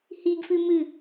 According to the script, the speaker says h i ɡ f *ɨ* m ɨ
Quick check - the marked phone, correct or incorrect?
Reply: correct